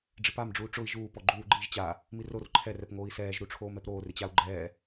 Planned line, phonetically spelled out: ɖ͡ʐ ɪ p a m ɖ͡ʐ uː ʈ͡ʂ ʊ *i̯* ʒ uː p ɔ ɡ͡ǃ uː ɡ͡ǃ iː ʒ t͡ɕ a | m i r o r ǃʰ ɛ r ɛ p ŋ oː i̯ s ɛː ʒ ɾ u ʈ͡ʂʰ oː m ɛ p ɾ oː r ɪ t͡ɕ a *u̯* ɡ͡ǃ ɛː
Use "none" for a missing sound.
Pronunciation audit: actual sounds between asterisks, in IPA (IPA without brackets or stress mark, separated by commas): i̯, u̯